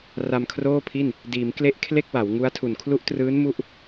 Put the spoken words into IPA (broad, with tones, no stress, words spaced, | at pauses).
ra˧mkʰroː˥˩pʰi˥˩n | diː˩˦mkle˦˥ʔ kʰle˥˩k̚wa˩˦wŋu˦˥a̯tʰu˨˩n kʰlu˦˥ʔtrɯː˦˥n mu˥˩ʔ